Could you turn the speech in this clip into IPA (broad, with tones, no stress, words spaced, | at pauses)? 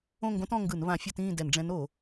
õ˥˨ŋɡõ˧˥tɔ̃˥˨ ŋɡɯ˧˩˧n βã˧˩˧ fʲɤ˥˨tĩː˥˨dɛ˧˩˧nɖ͡ʐɛ̃˧˥n o˧˩˧